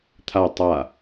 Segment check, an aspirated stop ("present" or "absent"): present